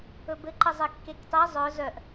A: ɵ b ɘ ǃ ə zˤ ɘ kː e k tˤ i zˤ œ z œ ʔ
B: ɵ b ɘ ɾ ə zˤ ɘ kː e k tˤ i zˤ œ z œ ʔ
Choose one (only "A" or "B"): A